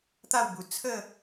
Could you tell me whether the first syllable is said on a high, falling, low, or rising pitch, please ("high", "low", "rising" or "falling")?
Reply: falling